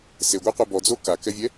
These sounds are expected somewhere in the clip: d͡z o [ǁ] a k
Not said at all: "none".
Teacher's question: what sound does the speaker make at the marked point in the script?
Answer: k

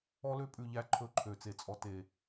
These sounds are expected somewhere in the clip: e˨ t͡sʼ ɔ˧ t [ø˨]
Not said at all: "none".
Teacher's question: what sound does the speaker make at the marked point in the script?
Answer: e˨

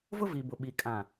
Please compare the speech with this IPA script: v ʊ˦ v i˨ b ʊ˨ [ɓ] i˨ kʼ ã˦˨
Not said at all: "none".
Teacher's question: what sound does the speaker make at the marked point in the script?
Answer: ɓ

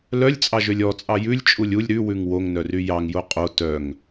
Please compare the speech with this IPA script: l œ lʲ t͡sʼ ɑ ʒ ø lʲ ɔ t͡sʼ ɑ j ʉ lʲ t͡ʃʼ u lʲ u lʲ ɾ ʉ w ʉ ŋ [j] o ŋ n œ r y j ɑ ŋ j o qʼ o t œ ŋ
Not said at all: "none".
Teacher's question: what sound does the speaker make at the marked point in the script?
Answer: w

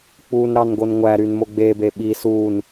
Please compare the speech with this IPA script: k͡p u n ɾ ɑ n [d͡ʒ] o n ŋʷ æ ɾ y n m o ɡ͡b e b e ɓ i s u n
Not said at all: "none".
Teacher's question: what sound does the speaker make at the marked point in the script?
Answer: ɡ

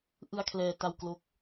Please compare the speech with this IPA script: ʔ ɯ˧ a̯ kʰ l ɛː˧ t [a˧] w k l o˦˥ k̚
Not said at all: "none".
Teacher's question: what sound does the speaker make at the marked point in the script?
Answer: a˧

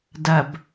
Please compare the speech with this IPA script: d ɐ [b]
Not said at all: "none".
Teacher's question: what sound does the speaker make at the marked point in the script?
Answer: b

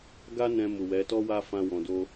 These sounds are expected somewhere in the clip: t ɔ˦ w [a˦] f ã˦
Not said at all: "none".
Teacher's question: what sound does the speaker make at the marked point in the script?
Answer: a˦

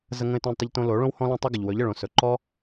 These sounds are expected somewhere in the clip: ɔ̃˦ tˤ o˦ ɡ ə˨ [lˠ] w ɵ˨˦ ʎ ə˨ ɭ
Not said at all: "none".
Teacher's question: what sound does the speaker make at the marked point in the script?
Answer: ʎ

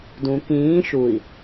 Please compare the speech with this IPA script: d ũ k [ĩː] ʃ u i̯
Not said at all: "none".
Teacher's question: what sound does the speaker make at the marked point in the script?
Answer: ĩː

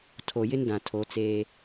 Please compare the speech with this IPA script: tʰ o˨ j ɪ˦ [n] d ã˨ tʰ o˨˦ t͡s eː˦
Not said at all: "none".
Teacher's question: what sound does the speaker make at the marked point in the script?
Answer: n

